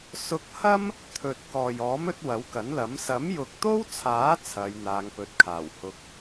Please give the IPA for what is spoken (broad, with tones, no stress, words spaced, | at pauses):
sʊ˧k̚hɐ˥m | t̪ʰɵ˨t̚ kɔː˨jɔː˨˥mɵ˨˥t̚ wɐ˨˥wkɐ˨˥nlɐ˨˥m sɐ˨˥mjʊ˨k̚t̪o˥wt͡sʰaː˨˥ t͡sʰɐ˨˧j n̪aː˨˧ŋpɵ˨˥t̚kʰaː˨˩w hʊ˧k̚